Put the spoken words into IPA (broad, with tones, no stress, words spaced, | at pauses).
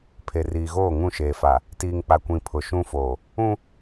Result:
pʰe˨riː˨ɣoː˦˨ŋũ˦˨ ʃeː˨fa˨ | tiː˨ŋk͡pa˨kʷĩ˨ pʰʊ˨ʃũ˦foː˨ | ũ˦